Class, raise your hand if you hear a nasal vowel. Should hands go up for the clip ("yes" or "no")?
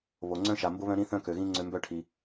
yes